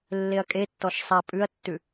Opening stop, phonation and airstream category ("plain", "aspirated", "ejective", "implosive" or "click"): ejective